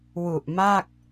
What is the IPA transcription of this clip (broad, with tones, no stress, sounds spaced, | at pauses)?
w u˨˩ ʔ m a˥˩ k̚